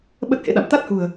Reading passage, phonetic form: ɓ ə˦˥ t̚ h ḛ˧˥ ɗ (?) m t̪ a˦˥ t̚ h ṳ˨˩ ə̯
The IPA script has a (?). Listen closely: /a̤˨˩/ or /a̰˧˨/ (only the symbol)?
a̰˧˨